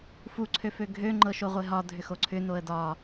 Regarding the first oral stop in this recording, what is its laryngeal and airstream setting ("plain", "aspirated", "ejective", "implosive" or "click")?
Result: click